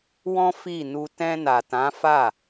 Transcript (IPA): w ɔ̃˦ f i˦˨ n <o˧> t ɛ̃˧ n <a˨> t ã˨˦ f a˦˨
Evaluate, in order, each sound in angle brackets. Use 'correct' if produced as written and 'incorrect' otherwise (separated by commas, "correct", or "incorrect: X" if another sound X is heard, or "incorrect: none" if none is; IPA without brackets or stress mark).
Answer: incorrect: u˧, correct